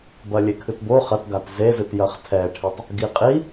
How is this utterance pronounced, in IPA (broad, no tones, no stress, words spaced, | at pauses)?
bɐlʲekʰɨtbo χɐtɡat zezɨtjɐχ tʰɛʈʰetˤ | ɡiqʼi